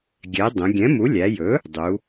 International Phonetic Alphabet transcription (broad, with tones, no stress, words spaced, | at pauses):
ɡʲɛ˩˥ dˤə̃˩˧ ɡʲɛ̃˩˥mu˩˥lʲæ˩˧jɵ˩˥ | dˤu˩˥